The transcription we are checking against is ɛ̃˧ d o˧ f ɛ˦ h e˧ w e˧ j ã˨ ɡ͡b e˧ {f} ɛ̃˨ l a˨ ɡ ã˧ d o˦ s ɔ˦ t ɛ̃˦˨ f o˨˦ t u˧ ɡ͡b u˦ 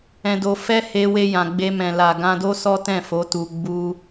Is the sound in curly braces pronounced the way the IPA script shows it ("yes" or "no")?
no